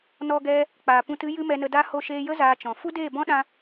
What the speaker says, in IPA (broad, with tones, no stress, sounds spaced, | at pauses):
n ɔ˧ ɡ ɛ˧ | k͡p aː˨ p ũ˧ t ɨ˦ j ɨ˦ m ɛ˧ n ə˧ d a˦ h o˧ ʃ eː˧ j ə˦ z aː˧ t͡ʃ ɔ̃˨ f u˦ d eː˦˨ b ɔ̃˦ ɗ ã˧